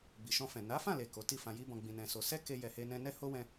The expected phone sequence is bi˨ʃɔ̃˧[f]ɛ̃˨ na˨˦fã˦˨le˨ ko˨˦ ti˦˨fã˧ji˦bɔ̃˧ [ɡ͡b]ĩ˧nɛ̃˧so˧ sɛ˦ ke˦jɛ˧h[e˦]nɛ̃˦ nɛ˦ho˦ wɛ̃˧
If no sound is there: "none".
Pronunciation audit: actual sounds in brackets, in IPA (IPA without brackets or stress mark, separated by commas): f, ɡ͡b, e˦